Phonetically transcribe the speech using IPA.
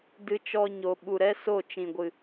d ɨ˧ t͡ʃ ɔ˧ ɲ o˨ ɓ u˨ ɾ ɛ˦ s o˦˨ t͡ʃ ĩ˨ ɡʷ ɨ˨

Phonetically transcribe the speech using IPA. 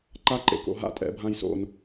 ǃ a˦ ǃ ḛ˧ k o̰˨ ɦ a̰˦˨ tʼ ɛ̰˧ bʱ ã˦ j s o̰˧ n

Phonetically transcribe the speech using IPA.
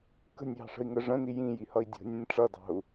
k ə̤ nʲ j ɑ̤ ʂ ə̤ i̯ ŋ ə ʐ ə̃ n i j ĩ j i h ʌ i̯ dʲ ə̤ nʲ ə̃ nʲ ʈ͡ʂ ʌ d ɑ̤ u̯

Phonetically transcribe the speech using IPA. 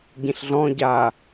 ɟ ĩ ɬ ɮ ɔ̃ ɟ a

